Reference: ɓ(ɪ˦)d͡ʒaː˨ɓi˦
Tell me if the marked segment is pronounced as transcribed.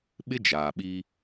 yes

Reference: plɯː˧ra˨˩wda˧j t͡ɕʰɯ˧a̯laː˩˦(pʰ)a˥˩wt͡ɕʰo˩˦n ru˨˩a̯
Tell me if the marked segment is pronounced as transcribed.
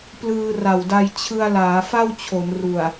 no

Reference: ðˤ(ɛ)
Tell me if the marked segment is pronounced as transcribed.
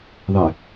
yes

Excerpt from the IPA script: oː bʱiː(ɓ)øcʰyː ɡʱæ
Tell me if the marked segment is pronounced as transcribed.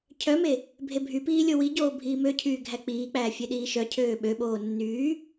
no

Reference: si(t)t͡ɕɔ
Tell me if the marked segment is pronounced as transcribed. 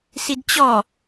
no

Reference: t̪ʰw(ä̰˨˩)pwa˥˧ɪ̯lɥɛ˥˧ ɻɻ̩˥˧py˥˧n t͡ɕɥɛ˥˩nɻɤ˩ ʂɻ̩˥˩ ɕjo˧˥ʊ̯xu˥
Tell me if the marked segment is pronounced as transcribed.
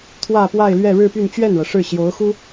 no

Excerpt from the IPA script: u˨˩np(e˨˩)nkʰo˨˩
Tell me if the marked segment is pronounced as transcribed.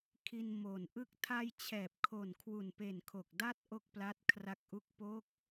yes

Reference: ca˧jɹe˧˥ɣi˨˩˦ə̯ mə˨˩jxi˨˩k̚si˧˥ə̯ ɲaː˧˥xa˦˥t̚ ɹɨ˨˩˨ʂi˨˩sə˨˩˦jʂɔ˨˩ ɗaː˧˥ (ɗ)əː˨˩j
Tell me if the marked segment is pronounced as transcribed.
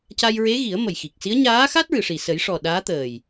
no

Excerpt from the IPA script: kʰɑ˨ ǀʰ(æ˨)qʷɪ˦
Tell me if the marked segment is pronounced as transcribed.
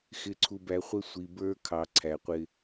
yes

